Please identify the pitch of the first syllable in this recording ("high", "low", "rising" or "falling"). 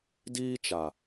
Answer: high